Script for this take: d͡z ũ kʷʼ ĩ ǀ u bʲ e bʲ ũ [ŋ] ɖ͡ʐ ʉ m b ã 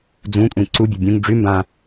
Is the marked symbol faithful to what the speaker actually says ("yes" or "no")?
yes